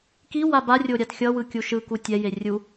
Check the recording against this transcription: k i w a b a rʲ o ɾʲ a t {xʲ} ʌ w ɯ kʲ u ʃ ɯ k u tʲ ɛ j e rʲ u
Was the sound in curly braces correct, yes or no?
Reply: yes